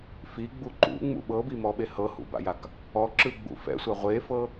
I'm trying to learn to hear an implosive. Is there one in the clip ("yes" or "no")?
yes